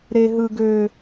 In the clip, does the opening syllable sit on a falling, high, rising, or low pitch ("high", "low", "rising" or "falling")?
high